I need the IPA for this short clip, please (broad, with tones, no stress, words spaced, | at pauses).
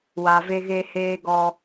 wa˨ ve˧ɣeː˧ heː˧ɡɔ˧